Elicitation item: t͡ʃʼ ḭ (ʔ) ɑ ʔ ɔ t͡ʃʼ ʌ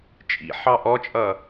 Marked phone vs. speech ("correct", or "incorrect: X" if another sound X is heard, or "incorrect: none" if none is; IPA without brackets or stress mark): incorrect: ħ